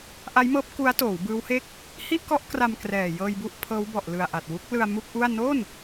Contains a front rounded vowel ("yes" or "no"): no